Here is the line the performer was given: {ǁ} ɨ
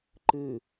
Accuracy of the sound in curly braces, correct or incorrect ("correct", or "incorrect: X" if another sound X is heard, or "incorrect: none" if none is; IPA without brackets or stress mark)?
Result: incorrect: ǃ